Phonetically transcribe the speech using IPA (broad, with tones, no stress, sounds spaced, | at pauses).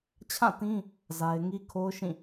t͡ɕʰ ã˦˨ t ĩ˦ | z a˦ ɪ̯ ŋ i˦ kʰ o˦ ʊ̯ ʃ ĩ˦˨